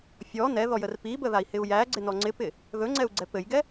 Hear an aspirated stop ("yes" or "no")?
no